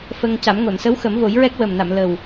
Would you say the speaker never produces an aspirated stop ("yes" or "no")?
yes